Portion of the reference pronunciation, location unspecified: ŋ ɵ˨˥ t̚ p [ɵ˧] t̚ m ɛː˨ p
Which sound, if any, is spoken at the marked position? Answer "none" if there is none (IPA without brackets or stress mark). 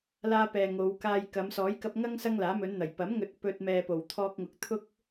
ɵ˧